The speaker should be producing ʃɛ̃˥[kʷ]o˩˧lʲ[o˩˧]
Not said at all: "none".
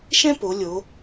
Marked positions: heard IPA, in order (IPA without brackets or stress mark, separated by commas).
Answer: p, o˩˧